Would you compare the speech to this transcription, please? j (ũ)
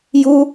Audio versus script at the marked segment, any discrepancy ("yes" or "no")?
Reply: yes